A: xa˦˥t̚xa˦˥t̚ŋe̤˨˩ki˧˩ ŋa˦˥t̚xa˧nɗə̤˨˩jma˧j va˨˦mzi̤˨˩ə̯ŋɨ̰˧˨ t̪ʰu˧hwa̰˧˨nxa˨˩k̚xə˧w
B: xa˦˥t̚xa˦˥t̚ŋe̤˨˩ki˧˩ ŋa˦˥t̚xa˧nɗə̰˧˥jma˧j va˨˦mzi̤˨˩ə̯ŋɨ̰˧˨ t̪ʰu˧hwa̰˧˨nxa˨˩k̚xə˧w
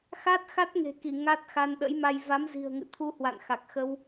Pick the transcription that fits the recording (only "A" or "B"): B